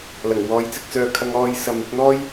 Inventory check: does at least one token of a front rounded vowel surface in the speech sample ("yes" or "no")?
yes